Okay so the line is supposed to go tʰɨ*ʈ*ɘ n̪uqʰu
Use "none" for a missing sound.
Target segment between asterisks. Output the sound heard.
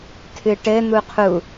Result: ʈ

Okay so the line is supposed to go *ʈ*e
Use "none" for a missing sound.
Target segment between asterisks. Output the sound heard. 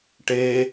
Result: ʈ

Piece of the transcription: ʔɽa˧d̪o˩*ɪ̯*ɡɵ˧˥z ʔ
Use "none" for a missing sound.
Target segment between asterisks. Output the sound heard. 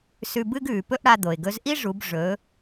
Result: ɪ̯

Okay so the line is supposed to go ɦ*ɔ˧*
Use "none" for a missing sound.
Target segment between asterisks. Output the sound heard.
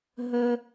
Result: ə˧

